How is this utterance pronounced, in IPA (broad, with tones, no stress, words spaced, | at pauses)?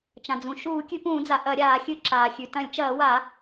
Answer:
t͡ʃã˩d͡zũ˩ ʃuː˧˩˧kʲʉ˧˩˧pũː˧˩˧d͡za˩ ʔɐ˧˩˧ɾʲaː˧˩˧ xʲɨ˧˩˧ǁaː˩xʲʉ˩ tɐ̃˧˩˧lʲt͡ʃɐː˧˩˧wa˧˩˧